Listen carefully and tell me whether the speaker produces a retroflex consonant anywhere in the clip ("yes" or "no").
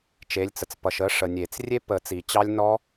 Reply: yes